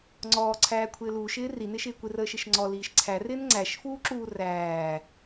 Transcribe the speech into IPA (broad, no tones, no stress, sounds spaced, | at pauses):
ŋ͡ǀ ɔː ǀʰ æː kʷʰ ɪː l uː ʃ ɪː r i n ɪ ʃ ɪː kʷ ɪ r əː ʃ ɪ ʃ ŋ͡ǀ ɔ l iː ʃ ǀʰ æ r ɪː n ŋ͡ǀ æ ʃ f uː ǁ uː r æː